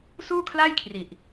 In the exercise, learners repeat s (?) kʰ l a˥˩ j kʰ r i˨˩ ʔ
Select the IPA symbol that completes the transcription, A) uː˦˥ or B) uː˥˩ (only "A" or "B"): B